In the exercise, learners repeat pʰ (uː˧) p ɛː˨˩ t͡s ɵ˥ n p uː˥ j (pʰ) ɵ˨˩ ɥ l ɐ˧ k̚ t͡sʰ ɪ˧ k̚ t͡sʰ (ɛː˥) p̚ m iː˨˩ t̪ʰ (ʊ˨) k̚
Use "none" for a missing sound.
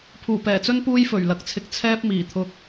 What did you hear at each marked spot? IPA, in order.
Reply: uː˨˩, f, ɛː˥, ʊ˨

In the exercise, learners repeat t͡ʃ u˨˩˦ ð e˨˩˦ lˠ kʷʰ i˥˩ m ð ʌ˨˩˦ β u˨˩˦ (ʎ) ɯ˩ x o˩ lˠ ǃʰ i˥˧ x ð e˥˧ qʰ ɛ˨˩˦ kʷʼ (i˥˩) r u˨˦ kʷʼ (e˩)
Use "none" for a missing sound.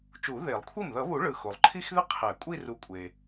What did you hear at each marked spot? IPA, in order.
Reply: ɭ, i˥˧, e˩

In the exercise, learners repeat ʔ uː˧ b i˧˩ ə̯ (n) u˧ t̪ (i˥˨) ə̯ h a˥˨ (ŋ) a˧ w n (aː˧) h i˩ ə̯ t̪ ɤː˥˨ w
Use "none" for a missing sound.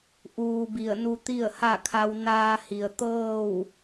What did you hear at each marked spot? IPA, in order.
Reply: n, i˥˨, kʰ, aː˧

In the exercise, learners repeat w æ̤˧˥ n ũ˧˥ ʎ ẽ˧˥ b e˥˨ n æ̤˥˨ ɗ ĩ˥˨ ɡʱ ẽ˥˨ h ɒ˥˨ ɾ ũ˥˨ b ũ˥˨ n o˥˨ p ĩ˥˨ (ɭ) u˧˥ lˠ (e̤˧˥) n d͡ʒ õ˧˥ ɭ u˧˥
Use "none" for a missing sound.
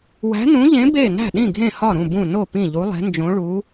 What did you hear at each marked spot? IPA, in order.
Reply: ʎ, e̤˧˥

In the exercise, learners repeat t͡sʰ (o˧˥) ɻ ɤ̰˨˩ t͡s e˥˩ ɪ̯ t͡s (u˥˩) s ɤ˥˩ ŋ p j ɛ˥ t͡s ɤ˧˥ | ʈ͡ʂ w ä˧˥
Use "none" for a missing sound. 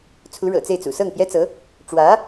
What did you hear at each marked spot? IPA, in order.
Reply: u˧˥, ṵ˨˩

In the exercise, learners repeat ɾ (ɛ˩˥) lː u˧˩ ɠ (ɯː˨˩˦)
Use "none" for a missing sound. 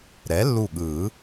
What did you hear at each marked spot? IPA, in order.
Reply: ɛ˩˥, ɯ˨˩˦

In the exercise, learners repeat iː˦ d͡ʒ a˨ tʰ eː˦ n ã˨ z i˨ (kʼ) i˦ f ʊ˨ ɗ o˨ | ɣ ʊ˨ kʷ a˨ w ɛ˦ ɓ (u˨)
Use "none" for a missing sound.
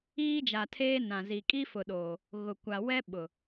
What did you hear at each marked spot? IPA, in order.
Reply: kʼ, ʊ˨

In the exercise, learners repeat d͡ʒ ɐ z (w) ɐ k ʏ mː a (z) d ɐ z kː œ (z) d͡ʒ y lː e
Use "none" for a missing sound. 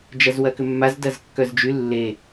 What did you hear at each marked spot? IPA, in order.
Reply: w, z, z

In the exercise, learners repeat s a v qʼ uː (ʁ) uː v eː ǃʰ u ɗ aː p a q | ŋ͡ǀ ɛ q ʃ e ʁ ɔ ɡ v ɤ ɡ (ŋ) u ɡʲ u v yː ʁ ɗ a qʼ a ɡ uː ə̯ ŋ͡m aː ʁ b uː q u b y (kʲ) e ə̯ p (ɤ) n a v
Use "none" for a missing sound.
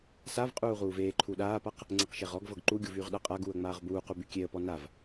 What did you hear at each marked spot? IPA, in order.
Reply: ʁ, ǃ, kʲ, ɔ

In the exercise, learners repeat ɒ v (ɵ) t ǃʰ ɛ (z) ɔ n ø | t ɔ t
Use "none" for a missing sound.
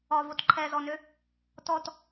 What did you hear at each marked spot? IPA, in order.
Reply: o, z

